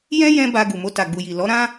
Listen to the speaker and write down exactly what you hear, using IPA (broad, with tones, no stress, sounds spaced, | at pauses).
j ɛ̃˦ j ɛ̃˦ b a˧ ɡ u˨ m o˧ t a˨ ɡ͡b u˨ j i˨ l ɔ˨˦ ɾ ã˦